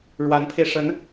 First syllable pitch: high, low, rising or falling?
rising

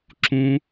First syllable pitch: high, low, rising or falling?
high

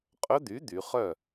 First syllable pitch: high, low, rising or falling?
rising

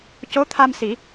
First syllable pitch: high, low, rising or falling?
rising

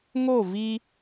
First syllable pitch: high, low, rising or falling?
falling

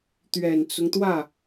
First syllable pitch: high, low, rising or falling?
low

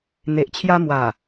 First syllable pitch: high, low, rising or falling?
low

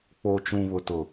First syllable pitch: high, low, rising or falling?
low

